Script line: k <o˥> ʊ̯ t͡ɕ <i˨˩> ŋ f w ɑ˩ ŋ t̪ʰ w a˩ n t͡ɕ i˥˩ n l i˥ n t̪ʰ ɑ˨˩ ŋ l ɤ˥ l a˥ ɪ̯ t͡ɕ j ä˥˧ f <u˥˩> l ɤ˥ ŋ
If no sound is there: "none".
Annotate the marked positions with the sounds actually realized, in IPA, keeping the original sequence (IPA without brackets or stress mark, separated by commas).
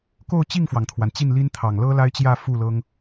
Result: o˥˧, i˥˩, u˥˩